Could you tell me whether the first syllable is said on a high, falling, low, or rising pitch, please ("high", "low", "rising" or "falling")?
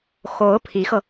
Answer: rising